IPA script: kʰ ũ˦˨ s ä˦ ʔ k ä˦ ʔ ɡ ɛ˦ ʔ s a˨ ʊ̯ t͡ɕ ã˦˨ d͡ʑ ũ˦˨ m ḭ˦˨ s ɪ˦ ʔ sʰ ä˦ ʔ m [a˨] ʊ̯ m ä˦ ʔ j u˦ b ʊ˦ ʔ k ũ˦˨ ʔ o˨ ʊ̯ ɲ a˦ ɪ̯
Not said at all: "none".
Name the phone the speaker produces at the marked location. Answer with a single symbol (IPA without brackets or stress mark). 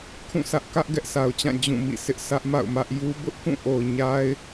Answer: a̰˦˨